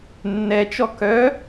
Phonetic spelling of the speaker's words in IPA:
nː ɛ t͡ʃ ɔ k œ

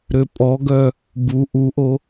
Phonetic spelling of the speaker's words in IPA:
ɾ ø pʼ ɔ ɡ œ | b u ʔ u ʔ o

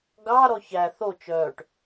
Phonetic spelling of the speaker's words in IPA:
ɡ ɑ ɾ ɔ ç æ θ o t͡ʃ œː ʈ

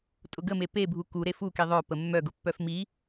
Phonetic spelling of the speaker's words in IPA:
tʼ ʊ ɡ ə m e p e bʱ u k u ɾ e f u k i ðˤ œ p ə mː œ ɡ ʊ pː œ f m i

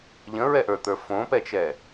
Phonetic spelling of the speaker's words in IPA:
ʎ ə̃ ɹ ɛ ʔ ə˞ t̪ ə˞ f õ p ɛ t͡ʃ ɛ

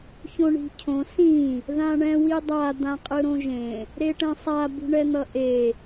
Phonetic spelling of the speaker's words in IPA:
ç õ ɳ i̤ cʰ õ s ĩ | ð ã ɳ ɛ̃ w i dˤ a d̪ ã qʼ ɯ ɾ õ ʒ ẽ | ɾ e ʈ ɛ̃ sˤ a b ṳ ɳ ɛ n̪ ʌ ʔ e

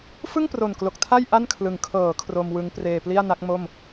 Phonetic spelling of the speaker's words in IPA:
f ɯ˥˩ ŋ p r o˨˩ n k l o˨˩ k̚ tʰ a˥˩ j ʔ a˥˩ n kʰ l ɯ˨˩ ŋ kʰ ɤː˩˦ kʰ r o˧ m w ɯ˦˥ ŋ p r eː˧ p l i˥˩ a̯ n a˦˥ k̚ m o˥˩ m

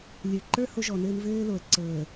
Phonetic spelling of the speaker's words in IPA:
lʲ ə˞˨ ǃ ə˞˦ h o˦ ʒ ɔ˨ n ɘː˦ n v ɘː˦ l o˨ ə̯ ǀ ɤ˨ ə̯

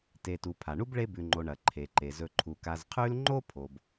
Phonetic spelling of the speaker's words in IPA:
t e˨ t u˨ pʰ a˩ ɳ u˥ b ɭ e˦ b ʉ˨ ŋ͡ǃ o˨ ɳ ɐ˩ ǃʰ e˩ ǃ e˩ z ɵ˨ ǃʰ u˩ k a˨ z qʰ ʉ˦ l ŋ͡ǃ o˥ pʰ o˨ b

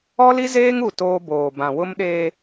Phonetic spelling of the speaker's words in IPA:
ɔ˦ l i˦ z eː˦ ŋ u˦˨ t oː˦ b oː˨ b ã˨ w ʊ˦ m ɗ eː˦

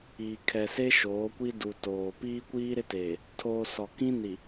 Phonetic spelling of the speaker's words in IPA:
iː˨ kʰ ɛ˨ s e˦ ʃ oː˨˦ kʷ i˦ d u˨ t oː˨ p iː˦ kʷ iː˦ ɾ ɪ˦ t eː˨ | tʰ oː˨ s ɔ˨ k ĩ˦ n i˨

